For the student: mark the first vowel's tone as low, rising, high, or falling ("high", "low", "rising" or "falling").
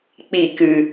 falling